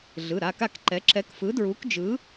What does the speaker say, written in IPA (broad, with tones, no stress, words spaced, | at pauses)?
ɮɯ˩˧˩ɾa˩˧˩ka˥˩kǃɛ˨˥ ǁɛ˨˥kfɯ˨˥dɹu˨˥kd͡ʒɯ˨˥